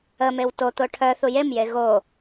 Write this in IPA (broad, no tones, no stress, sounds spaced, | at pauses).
ə m e w t o t̪ o ʈʰ œ θ u j e m j e ɣ o